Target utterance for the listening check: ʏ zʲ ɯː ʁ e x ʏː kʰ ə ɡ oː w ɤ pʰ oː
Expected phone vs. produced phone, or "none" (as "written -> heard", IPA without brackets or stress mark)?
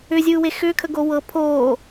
ʁ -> w